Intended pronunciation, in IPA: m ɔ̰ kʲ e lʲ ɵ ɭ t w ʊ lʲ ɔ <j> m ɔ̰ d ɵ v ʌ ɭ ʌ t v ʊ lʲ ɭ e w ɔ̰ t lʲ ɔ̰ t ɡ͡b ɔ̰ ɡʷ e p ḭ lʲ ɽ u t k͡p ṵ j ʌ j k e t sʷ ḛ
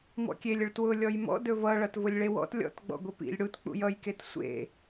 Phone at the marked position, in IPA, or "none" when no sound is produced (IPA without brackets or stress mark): j